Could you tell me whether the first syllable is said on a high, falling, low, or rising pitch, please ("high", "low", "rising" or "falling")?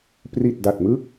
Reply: low